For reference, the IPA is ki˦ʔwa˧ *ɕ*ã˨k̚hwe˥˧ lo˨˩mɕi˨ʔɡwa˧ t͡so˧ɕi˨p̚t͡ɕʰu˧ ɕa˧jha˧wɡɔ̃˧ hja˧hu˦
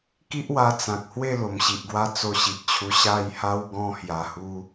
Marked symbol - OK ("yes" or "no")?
no